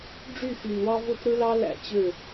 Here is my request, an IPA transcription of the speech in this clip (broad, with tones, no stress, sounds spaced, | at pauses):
ɖ͡ʐ y˦˨ x y˨ n w ɑ˦ v o˦ t ɾ ɯ˦ l ɑ˦ l æ̰˦ t͡ɕ ø˦˨